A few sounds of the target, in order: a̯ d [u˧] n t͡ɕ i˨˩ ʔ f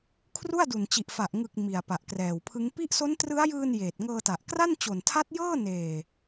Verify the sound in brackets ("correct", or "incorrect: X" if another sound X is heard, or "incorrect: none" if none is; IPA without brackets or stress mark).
incorrect: u˨˩